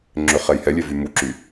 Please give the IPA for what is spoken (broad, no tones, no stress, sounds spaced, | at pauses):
ŋ͡ǁ ø χ ɛ j h ɛ lʲ ɛ v y m u ǁ y